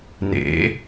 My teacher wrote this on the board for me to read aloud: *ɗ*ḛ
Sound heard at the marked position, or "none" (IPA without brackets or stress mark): n